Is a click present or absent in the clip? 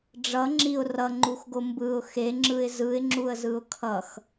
present